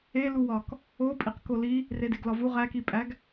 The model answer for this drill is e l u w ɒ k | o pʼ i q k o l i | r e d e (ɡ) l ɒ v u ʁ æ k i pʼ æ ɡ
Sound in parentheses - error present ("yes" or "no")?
no